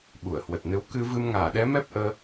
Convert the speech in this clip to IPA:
ɓ u˧˩ ə̯ h w ə˨˩ t̚ n ɨ˨˦ w k ɨ˧ v ɨ˧ m ŋ aː˧˩ ɗ ɛ˨˦ m ɛ˦˥ p̚ ʔ əː˧

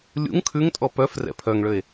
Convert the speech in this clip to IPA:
lʲ ṵ ŋ kʰ ʉ ŋ tʼ ɔ p œ f r ɛ̰ pʰ œ ŋ ɭ ø e̯

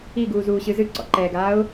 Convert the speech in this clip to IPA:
i ɡ uː z uː ɕ ɨ z ɨ ǀ ɔ̰ ǃ ɛː ɡ aː ʊ̯

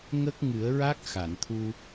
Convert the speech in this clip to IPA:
ŋ ə˦˥ k̚ ŋ ɨ˨˩˦ ə̯ ɹ a˦˥ k̚ x a˨˩˨ n t̪ʰ u˧

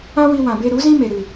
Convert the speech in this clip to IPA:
ã˦ w i˧ w ã˨ b e˧ ɾ u˨˦ z ĩ˦ m e˨ ɾ ɨ˨

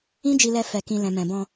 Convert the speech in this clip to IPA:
ĩ˦ d͡ʒ i˧ l ɛ˧ f ɛ˨ k ĩ˨ l ɛ̃˨ m ɛ̃˨ b ɔ̃˧

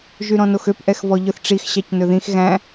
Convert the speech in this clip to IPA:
ʒ y ɾ ɔ̃ n o x ø p ʔ ɛ x v ɔ ʎ ɵ θ ʈ͡ʂ i x ɕ ɑ c n ɵ ð ĩ x ɣ æ̃

